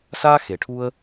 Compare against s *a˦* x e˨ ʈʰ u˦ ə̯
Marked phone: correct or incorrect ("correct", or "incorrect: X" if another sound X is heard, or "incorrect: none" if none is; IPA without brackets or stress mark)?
correct